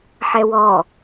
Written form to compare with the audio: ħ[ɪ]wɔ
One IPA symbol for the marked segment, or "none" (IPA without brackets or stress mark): ɛ